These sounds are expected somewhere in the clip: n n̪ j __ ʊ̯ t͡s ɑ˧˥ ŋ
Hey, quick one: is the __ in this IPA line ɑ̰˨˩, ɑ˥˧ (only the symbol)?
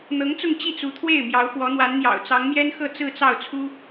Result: ɑ̰˨˩